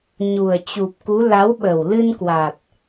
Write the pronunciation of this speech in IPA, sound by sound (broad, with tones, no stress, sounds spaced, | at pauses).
ɲ u˨˩ ə̯ t͡ɕ u˨˩ p̚ k u˨˦ l a˨˦ w ɓ ə˨˩ w l ɨ˧ n k w a˨˩ t̚